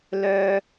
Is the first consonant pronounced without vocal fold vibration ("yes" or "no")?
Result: no